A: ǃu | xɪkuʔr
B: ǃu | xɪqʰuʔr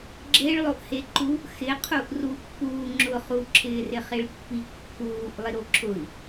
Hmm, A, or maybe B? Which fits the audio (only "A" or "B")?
B